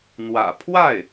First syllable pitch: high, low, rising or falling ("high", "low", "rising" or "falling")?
low